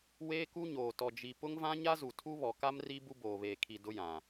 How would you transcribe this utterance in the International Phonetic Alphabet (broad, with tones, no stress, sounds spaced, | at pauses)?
w eː˦ k u˦ ɲ oː˨ t ɔ˨ d͡ʒ i˨ p ʊ˦ ŋ v ã˦ ɲ a˦ z u˨ tʰ u˦ β ɔ˨ k a˦ m r i˦ b u˦ b oː˨ β eː˨ kʰ i˨ d ʊ˦ j ã˨